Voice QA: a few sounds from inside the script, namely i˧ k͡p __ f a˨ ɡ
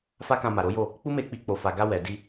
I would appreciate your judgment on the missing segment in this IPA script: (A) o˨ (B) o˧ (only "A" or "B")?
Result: A